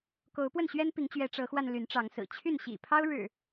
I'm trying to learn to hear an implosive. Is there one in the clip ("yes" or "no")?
no